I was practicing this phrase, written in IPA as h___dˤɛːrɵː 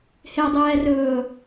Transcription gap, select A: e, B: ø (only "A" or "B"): A